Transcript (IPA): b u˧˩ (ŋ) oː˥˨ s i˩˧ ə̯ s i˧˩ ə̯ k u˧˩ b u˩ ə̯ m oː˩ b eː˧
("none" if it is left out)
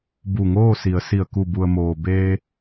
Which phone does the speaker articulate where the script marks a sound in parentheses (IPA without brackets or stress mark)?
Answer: ŋ